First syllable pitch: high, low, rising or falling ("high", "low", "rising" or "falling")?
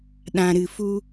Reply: low